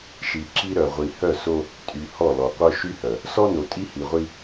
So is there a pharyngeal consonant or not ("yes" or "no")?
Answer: no